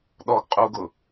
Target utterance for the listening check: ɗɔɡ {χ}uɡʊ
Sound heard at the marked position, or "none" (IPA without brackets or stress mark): qʼ